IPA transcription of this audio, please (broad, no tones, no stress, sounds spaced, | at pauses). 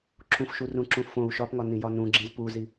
ǁʰ ũ f ʃ u r ũ ǁ ũ f õ u̯ ʃ ɒ p ŋ ɒ n ĩ j ɒ n ũ ɡ͡ǁ ĩ z p u z i